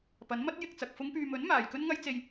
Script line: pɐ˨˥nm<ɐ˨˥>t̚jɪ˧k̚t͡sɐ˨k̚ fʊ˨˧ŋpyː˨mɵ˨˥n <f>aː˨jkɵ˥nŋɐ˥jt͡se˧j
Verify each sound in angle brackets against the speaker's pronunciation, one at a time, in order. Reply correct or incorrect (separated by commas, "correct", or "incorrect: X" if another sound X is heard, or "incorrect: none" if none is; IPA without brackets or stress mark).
incorrect: ɐ˥, incorrect: m